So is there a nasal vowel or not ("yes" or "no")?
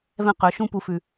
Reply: yes